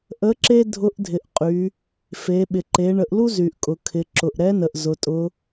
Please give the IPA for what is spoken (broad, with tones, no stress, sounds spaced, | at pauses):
ʔ ə˧˥ ǁ e˥ dʱ ʊ˧˥ ʔ dʱ ɪ˩˧ ʔ qʼ y˩˧ | f e˩˧ ɓ ɪ˩ ǃ e˩˧ ɳ ə˩˧ ʔ l u˥ z y˩ ʔ kʼ ʊ˩ kʰ ɪ˩˧ ǁ ʊ˩ ʔ ɾ ɛ˧˥ n ə˩ ʔ z ʊ˩˧ tʼ ʊ˧˥